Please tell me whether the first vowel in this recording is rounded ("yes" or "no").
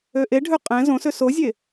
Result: yes